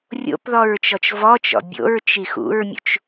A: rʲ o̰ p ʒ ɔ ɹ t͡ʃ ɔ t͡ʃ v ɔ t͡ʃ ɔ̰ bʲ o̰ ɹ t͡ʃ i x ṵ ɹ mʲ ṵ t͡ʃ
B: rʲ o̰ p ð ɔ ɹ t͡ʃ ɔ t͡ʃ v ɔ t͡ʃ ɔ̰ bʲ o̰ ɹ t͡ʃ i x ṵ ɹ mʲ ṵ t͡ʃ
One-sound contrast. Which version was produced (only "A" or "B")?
B